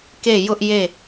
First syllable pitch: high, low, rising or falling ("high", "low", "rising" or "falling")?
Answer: falling